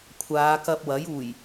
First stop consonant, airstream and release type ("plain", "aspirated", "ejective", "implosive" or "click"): aspirated